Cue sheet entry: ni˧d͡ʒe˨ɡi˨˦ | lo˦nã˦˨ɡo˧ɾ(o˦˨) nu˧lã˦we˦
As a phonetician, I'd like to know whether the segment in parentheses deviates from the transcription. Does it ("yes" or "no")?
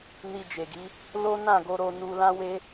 yes